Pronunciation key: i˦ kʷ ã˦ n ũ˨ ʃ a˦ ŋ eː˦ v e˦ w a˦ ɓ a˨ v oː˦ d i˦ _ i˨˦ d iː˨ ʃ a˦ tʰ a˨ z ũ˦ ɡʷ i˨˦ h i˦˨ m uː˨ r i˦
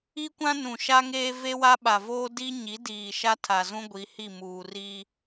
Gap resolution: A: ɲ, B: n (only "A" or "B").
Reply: A